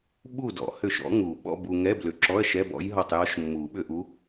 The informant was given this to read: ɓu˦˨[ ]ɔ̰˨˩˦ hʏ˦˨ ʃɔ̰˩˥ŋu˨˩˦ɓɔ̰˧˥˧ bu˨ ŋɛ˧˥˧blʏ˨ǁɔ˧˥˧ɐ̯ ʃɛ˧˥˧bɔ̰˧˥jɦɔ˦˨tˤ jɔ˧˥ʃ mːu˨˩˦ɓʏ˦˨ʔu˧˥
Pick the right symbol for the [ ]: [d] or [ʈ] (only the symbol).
d